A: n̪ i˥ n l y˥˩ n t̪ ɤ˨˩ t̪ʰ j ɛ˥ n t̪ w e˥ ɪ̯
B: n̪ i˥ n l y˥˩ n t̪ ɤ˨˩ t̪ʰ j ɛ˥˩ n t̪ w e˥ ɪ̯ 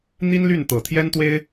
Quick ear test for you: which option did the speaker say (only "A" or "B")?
A